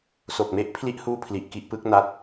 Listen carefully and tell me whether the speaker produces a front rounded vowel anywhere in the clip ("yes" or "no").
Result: no